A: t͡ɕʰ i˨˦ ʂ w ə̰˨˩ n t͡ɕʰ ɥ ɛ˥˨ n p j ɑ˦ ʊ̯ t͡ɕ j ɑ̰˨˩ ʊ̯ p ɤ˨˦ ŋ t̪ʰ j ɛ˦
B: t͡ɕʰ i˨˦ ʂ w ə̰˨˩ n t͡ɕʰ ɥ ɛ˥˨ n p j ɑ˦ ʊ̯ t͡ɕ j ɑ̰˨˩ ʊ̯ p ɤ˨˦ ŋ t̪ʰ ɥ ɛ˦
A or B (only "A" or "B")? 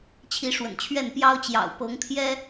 A